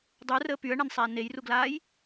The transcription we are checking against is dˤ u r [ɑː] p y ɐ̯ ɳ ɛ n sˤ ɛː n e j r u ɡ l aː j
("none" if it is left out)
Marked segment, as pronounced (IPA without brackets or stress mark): əː